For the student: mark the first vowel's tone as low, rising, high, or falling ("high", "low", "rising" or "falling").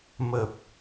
low